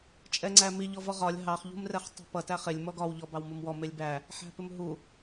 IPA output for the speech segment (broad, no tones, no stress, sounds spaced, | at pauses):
t͡ʃʼ ɛ ŋ͡ǀ æ m i ʎ ɔ v ɔ ʁ ɒ lʲ ɦ ɑ χ ʎ ṳ m r ɛ χ tˤ ṳ p ʌ t æ χ ɪ lʲ m ɔ ɡ ɒ w ʎ ɔ b ɑ w m u m w ɔ m ɪ lʲ b æ | ħ æ̤ p ɪ m ɦ u